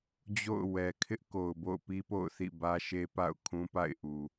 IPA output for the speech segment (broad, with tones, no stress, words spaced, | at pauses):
d͡ʑo̰˦˨ʊ̯ wɛ˨ kʰɪ˦ʔko˨ʊ̯bo̰˦˨ʊ̯ pi˦po̰˦˨ʊ̯ θḭ˦˨bä˦ʃe˦ pa̰˦˨ʊ̯kʰũ˦pa̰˦˨ɪ̯ʔu˨